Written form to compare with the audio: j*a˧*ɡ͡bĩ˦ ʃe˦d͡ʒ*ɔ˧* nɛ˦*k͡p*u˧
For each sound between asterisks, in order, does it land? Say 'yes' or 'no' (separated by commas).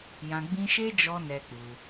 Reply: no, yes, yes